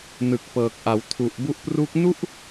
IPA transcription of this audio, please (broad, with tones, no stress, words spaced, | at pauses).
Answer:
nɯ˨˩k̚pɤː˨˩k̚ʔa˩˦w tʰu˨˩ʔ bu˦˥ʔpru˦˥k̚ nu˥˩ʔ